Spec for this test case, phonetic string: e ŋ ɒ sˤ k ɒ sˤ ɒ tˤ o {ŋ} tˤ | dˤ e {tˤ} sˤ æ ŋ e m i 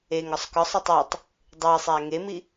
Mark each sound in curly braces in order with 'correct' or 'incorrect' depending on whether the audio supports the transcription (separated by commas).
incorrect, incorrect